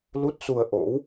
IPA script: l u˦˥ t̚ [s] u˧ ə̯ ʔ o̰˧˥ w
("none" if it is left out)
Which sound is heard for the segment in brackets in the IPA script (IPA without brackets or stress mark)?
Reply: s